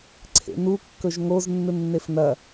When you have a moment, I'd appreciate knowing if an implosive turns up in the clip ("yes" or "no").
no